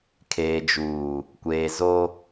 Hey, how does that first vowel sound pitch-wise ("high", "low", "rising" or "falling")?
low